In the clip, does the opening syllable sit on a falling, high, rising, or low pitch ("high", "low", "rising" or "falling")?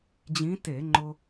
rising